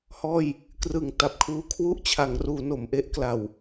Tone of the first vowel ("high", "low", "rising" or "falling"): falling